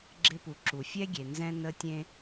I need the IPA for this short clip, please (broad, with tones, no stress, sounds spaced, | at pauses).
ɡ͡ǁ ɪ˥ p u˩ ǁ u˩ fʲ ɛ˥ ɡʲ e˩ n z ɛ̃˥ n ə˥ tʲ ẽ˥